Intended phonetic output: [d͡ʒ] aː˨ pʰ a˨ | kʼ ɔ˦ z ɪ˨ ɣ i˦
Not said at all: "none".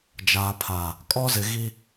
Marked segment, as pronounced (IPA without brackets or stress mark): d͡ʒ